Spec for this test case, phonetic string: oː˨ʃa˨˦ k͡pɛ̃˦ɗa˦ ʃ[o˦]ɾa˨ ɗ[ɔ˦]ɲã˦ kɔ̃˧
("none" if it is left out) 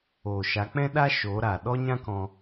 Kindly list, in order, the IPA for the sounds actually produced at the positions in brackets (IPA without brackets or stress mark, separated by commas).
o˨˦, ɔ˦